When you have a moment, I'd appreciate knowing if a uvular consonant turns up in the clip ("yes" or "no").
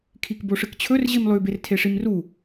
no